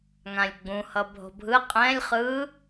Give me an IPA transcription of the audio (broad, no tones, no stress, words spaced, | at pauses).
ŋãlʲɡ͡bũ hʌbʱo̤bʱɯ qʼɛ̃lʲ χɯ